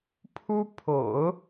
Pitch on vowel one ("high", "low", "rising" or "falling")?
high